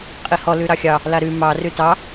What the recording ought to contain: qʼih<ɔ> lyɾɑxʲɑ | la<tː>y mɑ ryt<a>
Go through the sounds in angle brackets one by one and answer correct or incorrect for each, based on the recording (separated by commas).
correct, incorrect, incorrect